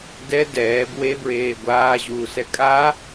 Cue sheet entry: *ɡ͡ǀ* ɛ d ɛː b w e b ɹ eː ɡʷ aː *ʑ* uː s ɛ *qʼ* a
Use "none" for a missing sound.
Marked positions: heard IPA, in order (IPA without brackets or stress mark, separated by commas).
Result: d, ʑ, kʼ